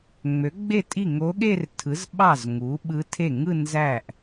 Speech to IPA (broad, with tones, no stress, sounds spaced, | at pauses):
ŋ͡m ø˩˥ ɡ͡b e˥˩ tʼ i˥˩ ŋ o˧˥ ɠ e˥˧ r tʰ ɯ˩˥ z ɓ ɑ˥˩ z ŋ u˩˥ ɓ ɯ˧˥ tʰ e˥˩ ŋ ɯ˥˧ n z æ˥˩ ʔ